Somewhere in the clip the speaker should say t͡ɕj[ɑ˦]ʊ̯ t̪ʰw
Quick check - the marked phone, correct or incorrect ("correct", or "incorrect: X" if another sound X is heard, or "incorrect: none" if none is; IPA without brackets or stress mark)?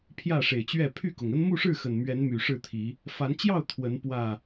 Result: incorrect: ɑ˥˨